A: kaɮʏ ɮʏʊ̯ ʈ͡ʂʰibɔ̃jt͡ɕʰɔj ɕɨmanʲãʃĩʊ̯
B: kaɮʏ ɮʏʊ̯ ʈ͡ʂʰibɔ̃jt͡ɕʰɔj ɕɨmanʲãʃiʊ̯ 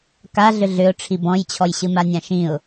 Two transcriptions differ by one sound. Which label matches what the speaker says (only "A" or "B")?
A